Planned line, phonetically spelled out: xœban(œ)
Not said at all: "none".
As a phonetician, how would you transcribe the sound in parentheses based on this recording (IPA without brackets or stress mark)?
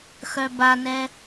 ɛ